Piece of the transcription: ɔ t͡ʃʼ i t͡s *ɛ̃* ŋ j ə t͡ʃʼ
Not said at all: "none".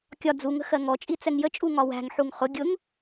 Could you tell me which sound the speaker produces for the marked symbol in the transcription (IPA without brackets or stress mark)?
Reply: ɛ